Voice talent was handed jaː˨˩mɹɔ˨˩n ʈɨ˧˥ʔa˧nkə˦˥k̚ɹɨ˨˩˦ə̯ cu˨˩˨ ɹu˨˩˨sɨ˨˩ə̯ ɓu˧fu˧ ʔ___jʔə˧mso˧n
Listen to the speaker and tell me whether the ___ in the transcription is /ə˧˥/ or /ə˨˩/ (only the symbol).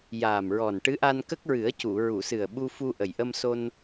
ə˨˩